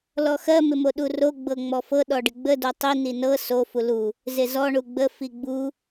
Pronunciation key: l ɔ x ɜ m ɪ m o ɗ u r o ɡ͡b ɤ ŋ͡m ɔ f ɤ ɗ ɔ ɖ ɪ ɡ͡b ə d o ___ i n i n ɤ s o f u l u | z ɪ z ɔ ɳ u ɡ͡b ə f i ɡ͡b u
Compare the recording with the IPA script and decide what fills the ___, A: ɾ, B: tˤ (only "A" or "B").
B